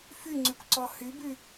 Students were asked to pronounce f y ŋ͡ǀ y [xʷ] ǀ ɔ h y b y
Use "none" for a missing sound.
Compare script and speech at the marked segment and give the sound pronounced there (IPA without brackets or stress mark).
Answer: kʷ